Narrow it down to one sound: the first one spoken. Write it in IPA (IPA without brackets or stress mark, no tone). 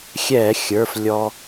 xʲ